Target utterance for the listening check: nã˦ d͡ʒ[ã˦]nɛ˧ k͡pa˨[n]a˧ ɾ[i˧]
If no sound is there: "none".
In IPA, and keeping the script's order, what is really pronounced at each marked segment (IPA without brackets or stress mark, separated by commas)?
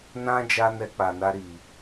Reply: a˦, n, i˨